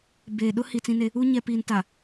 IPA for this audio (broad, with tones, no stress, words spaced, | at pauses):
be˨ ɗʊ˦hi˨ t͡sĩ˦ne˦ | u˦ ɲɛ˨piː˨nta˨